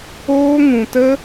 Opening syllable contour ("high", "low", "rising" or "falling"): high